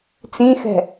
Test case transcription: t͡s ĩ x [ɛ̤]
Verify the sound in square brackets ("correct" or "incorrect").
correct